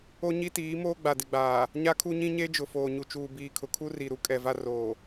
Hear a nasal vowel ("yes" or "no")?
yes